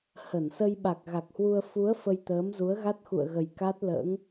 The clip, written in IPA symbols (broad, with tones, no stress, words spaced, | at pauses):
hə˧˩nsə˧j ɓa˨˩k̚ɣa˨˩k̚hwu˧ə̯ fu˨˦ə̯ fə˧jt̪əː˨˦mzu˨˦ə̯ ɣa˦˥t̚xṵ˧˨ə̯ɣə˨˩j ka˦˥t̚lə̰ː˧˥ŋ